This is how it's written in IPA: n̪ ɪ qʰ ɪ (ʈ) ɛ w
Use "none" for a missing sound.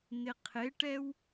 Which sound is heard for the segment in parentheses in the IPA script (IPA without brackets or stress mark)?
ʈ